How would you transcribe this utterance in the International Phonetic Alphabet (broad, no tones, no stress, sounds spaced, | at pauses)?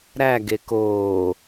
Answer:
ɾ æ ɡ e k oː